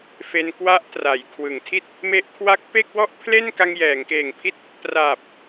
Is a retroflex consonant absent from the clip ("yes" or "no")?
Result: yes